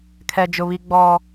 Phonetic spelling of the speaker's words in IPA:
kʰ ɛ˦ d͡ʒ ʊ˦ β i˦ ɡ͡b ɔ˦

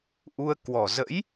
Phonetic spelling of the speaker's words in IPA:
ʔ u˧ ə̯ k w ɔ˨˩ z ə̰˧˥ j

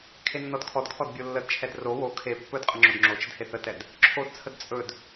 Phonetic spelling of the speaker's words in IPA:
kʰ e nː ɔ d kʰ ɔ d kʰ ɔ d bʲ o lː ə d t͡ʃʰ ɛ d r o w o kʰ e pː ɵ d qʼ ə ŋ͡ǁ o d ŋ͡ǁ o t͡ʃ ə d h e θ ə t ɛ d | ǁʰ o d t͡sʰ ə d t͡sʼ ɵ d

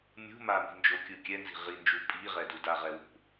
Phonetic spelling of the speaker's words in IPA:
mʲ ṳ m a m i̤ n d͡ʒ o kʲ ɯ kʲ ɛ n z i̤ ʁ i n d͡ʒ u pʼ i ʁ ɛ d u d a ʁ ɛ w ṳ

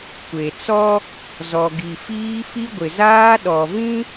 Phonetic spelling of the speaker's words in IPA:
kʷ e˨ t͡s ɔ˦ | z ɔ˨ ɡ i˨ f iː˦ f i˦ ɡʷ ɪ˨ z aː˦ ɗ ɔ˨ v ĩ˦

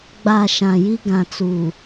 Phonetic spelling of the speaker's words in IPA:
ɡ͡b a˨ ʃ ã˨ j i˦ ɡ ã˨ t͡s uː˨

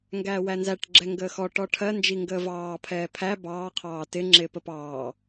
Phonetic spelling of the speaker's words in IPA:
ŋ ɡ æː w æ n z æ ʈ ɡ͡ǁ ɛ ŋ ɡ əː x ɔ ʈ ɔ ʈʰ ɜ n d͡ʒ i ŋ ɡ əː v ɑː pʰ ɛː pʰ æ b ɑː qʰ ɑː t ɪ ŋ͡ǁ ɪː p ə p ɑː

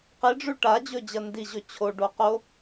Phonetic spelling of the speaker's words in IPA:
q i ɖ͡ʐ ʉ ʈ a d͡ʑ ɵ d͡ʑ ɐ n d i ʑ ɵ t͡ɕʰ o ɖ o q o

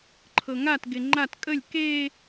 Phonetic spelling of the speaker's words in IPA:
ǃʰ ɤ ŋ a t ɡ e ŋ͡ǃ a t kʼ ə lʲ k e

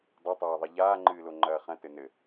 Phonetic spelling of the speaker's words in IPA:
dˤ ɘ tˤ aː ðˤ i ʎ aː ŋ͡ǃ ɨː l o ŋ͡ǃ ɐː χ ɐ̃ t ɘ n ɘ

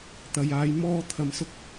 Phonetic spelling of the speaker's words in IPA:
t̪ ɐ˨ j aː˨˧ j m ɔː˧ t̪ʰ ɐ˨ m s ʊ˧ k̚

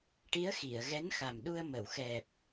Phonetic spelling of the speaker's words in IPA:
ʈ i˧˥ ə̯ x i˨˩˨ ə̯ ɣ ɛ˧˥ n x a˨˩ m ɗ u˧ ə̯ m ə˨˩˨ w x ɛ˨˩ p̚

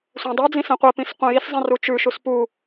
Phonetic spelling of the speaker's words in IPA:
sʷ ɛ̃ dˤ ʉ d͡z ĩ s ɛ̃ qʷ ɛ p ĩ s qʷ ɛ̃ j i s zˤ ɛ̃ r u t͡ʃ ʉ ʃ u s p u

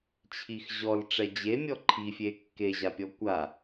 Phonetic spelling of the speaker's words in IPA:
t͡ɕʰ i x ʑ ɔ l ʈ͡ʂ ɛ d͡ʑ e mʲ ɔ ǃʰ i fʲ e kː e ʑ a pʲ ɔ kʷ a

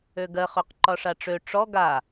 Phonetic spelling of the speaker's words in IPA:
ø ɡ ɜ χ ø q ǃ ɒ ʂ a ʈ͡ʂ ø ʈ͡ʂ ɔ ɡ a

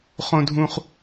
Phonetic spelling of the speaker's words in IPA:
χ õ˨ dʱ ũ˨ χ

